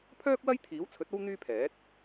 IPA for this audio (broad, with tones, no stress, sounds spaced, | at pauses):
pʰ œː˥ k̚ w ɐ˥ j t̪ʰ iː˨˥ w t͡sʰ ɵ˨˥ t̚ o˥ w n̪ yː˥ pʰ ɛː˨˥ t̚